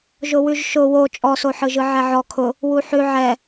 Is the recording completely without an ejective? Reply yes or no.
no